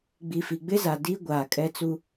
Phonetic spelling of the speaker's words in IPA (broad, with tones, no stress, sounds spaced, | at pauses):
ɡ͡b i˨ f i˨ ɡ͡b ɪ˦ z a˨ d i˦ ɡʷ aː˨ kʼ ɛ˦ t͡s u˦